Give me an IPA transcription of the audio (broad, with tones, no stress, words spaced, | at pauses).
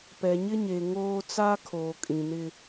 pɛ˨ɲɪ˦ɲe˨ ŋoː˦ t͡sa˦kʰoː˨kʼĩ˨nɪ˦